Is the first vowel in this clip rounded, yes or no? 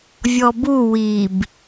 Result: yes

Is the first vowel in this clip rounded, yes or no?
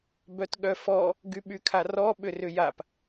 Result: yes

